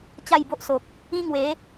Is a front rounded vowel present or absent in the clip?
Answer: absent